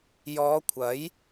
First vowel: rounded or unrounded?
rounded